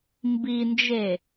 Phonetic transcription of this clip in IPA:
mbind͡ʒe

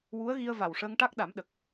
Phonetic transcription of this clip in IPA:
wu˧˥ə̯ɣi˧ə̯ va˨˩wʂəː˧ŋʈa˦˥k̚ ɗa˨˩˦mɗə˨˩k̚

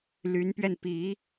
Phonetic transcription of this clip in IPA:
ly˧˥npɥɛ˧n pi˧˥

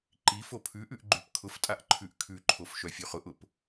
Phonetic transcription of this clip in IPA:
ǃifo pʰʉʔʉʔ ɡ͡ǃʉpkʰʊftʼaʔ ǃʰʉʔkʰʉǃʰof ʃœfʲʉχʊʔʊp

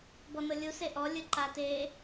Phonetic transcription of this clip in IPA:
bɔnɤlʲu seʔɔ lʲɯǃate

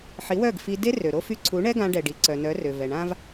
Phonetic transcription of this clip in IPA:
ħi˨˦wœ˦˨ɡfi˧ de˦ rø˨ɾo˦fy˦˨ ǀʰu˨˦ɳɛ˦ ɡã˦ ɖɛ˨ɖi˨ǀœ˨nœ˨˦ rø˨vɛ˨ɳã˦v

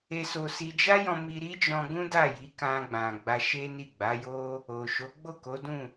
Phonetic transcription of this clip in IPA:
e˧so˧si˧ d͡ʒa˦jɔ̃˧ mi˧ɾi˦d͡ʒɔ̃˧ɡũ˦ da˦˨ji˨˦kã˧ ɡ͡bã˨ ɡ͡ba˧ʃe˦ni˦˨ ɡ͡ba˨˦jo˦ | o˨ʃo˨˦ ɡ͡bo˦˨ko˨˦dũ˦˨

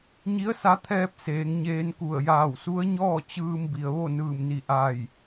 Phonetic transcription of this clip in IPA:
ɲi˧˥ə̯sa˧˥t̪ʰɛː˧p̚ seː˩˧ŋɲeː˧nku˧˩ə̯ jaː˧˩wsu˧˥ə̯ɲɔː˥˨ t͡ɕɯː˧mbi˩ə̯ ʋo˥˨nɯː˧˩mni˧˩ ʔaː˧˩j

